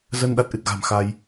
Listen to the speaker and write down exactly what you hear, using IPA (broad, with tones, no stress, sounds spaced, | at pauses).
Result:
z ə˧ n ɗ a˦˥ t̚ ʔ ɨ˨˩ t̚ ɣ a̤˨˩ m x a˧ j